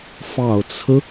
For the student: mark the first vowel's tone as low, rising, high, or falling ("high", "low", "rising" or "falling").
low